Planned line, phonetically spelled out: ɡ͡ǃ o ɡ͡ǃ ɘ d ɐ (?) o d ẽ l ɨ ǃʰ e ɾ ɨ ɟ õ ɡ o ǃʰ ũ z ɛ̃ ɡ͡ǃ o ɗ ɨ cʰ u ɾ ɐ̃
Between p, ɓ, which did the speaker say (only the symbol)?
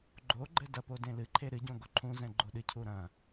p